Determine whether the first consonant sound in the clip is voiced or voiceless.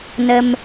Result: voiced